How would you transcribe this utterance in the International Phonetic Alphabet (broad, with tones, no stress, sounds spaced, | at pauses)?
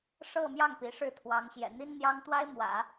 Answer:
ʂ ɤ˥˧ m j ɑ˥˩ ŋ p i˧˥ ʂ ɻ̩˥˩ t̪ʰ w ɑ˧˥ ŋ ɕ j ɛ̰˨˩ n̪ i˥ n n̪ j ɑ˥ ŋ t̪ w a˥ ɪ̯ m w ä̰˨˩˦